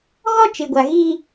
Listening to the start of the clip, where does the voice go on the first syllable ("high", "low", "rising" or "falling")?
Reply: high